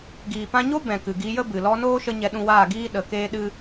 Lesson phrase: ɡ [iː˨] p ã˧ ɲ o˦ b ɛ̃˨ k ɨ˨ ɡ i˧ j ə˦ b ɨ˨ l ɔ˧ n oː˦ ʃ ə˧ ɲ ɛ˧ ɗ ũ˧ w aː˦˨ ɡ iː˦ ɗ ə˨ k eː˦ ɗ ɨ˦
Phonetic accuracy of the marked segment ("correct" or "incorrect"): correct